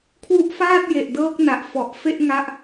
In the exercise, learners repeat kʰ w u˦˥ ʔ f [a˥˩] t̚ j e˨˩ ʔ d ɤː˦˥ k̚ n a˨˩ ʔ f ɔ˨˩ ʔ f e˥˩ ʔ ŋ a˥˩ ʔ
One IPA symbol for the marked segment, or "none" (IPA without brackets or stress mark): aː˥˩